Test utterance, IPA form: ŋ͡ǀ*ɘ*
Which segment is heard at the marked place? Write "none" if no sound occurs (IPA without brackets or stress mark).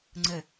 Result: ɘ